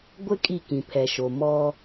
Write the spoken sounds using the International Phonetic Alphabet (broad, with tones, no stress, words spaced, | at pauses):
ɡʷɪ˦ kʼi˦˨kĩ˨pʰɛ˨ʃo˨ mɔ˦